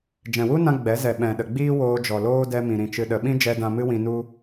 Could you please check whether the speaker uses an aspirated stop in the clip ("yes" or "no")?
no